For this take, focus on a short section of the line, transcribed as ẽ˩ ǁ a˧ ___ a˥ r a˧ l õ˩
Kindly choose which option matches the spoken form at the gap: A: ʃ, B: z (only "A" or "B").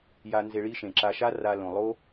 A